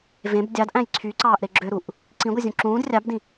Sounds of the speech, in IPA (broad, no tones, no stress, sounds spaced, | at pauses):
v ẽ b dʲ ɑ d ʔ æ̃ j ǀʰ y ǀ ɑː ʔ ɾ e ɡ͡ǁ ø ɾ u ʔ | ǀ ĩ ɡʷ i zʲ ũ ǁ ũː d rʲ ɑ b d ĩ